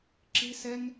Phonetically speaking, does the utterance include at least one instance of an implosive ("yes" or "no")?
no